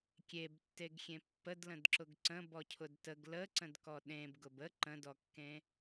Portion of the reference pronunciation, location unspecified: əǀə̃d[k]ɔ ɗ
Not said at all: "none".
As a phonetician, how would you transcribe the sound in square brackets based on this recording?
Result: k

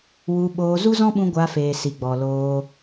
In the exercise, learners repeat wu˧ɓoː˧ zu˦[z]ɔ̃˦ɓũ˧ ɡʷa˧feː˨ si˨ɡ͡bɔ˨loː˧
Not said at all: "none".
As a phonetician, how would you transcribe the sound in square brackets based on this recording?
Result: z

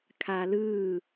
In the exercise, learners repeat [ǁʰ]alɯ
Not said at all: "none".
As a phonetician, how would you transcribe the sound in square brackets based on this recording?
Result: kʰ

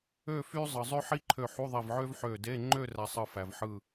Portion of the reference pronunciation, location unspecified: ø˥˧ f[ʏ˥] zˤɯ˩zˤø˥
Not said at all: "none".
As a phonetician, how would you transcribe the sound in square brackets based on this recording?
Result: y˥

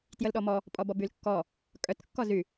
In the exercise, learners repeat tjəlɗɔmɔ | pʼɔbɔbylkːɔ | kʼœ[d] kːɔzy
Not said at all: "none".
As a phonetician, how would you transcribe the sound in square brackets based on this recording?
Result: t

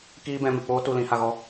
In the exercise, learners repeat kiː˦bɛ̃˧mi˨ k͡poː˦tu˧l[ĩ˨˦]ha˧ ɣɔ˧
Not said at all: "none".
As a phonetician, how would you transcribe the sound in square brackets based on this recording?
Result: ĩ˨˦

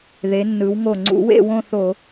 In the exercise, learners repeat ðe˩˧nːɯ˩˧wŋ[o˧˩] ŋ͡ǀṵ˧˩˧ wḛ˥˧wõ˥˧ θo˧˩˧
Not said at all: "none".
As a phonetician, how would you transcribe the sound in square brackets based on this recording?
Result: o˧˩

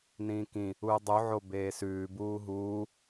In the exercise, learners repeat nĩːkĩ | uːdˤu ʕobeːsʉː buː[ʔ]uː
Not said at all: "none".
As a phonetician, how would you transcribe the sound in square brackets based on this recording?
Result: ɦ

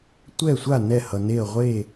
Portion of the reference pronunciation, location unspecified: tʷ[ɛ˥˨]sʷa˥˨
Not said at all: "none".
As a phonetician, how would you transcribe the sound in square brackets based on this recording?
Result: ɛ˥˨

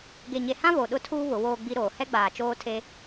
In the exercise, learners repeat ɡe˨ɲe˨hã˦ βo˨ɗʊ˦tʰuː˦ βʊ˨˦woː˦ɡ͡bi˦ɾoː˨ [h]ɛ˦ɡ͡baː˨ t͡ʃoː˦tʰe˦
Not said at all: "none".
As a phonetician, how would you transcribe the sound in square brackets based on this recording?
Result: h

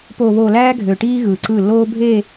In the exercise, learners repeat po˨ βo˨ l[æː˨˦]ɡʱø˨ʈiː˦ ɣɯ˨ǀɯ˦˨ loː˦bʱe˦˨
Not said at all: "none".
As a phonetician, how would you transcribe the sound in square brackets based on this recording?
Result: æː˦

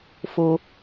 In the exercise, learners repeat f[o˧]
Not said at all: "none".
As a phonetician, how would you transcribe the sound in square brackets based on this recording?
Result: o˧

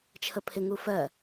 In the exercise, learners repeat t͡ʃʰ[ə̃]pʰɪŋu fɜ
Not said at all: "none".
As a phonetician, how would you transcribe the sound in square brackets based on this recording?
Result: ə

